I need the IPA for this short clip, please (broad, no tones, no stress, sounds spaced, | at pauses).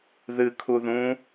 ð ɨ kʰ u ð ũ